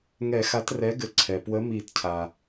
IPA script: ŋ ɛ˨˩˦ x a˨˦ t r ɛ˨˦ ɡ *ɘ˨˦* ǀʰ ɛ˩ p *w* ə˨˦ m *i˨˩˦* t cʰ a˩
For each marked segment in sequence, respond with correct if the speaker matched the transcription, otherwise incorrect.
correct, correct, correct

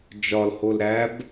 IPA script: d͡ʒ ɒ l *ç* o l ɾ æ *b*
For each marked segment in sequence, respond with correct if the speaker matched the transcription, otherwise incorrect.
incorrect, correct

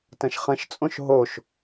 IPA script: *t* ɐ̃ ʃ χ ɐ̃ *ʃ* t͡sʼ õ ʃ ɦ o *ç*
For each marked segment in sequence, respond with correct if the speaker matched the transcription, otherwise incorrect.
correct, correct, incorrect

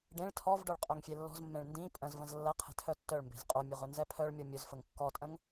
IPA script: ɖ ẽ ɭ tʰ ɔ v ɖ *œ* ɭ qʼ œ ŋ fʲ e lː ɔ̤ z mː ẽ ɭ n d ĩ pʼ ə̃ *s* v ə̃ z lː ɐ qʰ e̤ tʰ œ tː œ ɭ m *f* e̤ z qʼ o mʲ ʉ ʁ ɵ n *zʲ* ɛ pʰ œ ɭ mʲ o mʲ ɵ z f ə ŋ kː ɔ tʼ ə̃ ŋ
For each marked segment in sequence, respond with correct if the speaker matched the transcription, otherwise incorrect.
correct, incorrect, incorrect, incorrect

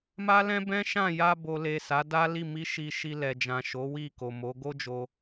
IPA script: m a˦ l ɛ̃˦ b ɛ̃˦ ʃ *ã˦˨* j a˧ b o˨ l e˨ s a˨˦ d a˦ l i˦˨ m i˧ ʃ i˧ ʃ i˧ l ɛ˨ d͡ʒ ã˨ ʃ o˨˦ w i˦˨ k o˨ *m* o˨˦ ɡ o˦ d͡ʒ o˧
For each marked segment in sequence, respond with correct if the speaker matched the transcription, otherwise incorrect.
correct, correct

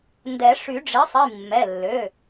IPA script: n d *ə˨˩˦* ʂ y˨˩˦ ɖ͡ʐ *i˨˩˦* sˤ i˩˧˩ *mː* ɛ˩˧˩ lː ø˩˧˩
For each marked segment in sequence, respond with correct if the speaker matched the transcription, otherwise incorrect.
incorrect, incorrect, correct

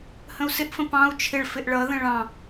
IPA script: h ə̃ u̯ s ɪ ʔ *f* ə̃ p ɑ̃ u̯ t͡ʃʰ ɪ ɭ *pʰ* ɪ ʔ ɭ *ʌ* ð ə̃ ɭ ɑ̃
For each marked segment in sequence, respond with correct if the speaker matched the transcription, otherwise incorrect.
correct, incorrect, correct

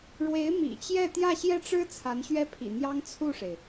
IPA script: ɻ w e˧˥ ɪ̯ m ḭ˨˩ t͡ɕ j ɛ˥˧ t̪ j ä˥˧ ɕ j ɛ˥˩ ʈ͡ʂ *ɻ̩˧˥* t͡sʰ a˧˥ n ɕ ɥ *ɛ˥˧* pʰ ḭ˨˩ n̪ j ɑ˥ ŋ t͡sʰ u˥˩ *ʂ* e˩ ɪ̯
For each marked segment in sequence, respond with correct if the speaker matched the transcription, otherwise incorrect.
incorrect, incorrect, correct

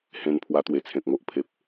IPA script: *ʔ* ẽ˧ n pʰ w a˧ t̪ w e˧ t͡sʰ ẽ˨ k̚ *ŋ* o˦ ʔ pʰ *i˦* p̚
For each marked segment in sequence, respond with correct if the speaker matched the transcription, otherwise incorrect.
incorrect, correct, incorrect

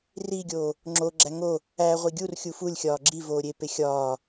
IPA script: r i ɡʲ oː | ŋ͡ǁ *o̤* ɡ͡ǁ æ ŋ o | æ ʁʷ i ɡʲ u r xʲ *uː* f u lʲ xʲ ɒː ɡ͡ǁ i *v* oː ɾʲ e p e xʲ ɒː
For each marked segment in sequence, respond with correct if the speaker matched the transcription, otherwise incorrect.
incorrect, incorrect, correct

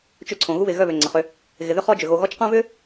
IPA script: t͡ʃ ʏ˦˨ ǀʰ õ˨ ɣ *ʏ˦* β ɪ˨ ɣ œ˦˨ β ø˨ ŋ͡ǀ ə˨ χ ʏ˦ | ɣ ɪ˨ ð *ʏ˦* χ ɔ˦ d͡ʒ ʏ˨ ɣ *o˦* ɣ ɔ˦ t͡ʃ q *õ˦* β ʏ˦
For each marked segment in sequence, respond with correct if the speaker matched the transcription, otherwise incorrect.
incorrect, correct, incorrect, incorrect

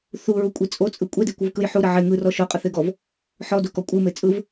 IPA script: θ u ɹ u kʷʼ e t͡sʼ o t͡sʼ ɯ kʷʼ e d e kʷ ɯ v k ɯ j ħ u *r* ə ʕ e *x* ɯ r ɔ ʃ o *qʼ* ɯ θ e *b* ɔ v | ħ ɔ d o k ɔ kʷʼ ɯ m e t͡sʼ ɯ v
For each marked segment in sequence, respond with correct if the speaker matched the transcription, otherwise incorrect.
incorrect, incorrect, correct, incorrect

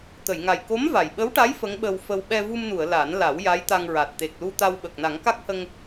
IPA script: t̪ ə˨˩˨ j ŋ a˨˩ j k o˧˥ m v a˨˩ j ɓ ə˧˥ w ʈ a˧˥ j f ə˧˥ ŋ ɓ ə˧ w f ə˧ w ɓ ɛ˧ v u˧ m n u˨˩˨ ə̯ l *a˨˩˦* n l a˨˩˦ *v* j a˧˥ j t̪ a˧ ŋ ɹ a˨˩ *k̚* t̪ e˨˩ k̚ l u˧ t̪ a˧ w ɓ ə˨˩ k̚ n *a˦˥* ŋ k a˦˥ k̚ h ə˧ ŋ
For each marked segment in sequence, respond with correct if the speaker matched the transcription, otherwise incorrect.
correct, incorrect, incorrect, incorrect

